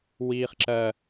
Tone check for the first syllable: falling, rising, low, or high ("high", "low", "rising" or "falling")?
high